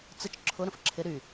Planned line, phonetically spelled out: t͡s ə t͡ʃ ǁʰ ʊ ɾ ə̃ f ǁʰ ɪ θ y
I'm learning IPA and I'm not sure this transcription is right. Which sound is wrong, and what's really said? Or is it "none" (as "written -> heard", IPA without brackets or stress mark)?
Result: θ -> ɾ